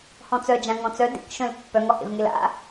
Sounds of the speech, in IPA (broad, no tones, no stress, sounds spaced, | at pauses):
h ɔ̃ t͡s œ d͡ʒ ã ŋ ɔ̃ t͡s œ d ḛ k ʃ œ̃ l pː œ ŋ ɔ h ḛ v ŋ e l a̰